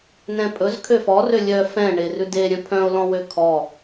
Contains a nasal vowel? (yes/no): yes